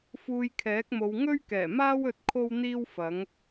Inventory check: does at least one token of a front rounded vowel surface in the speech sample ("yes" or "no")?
no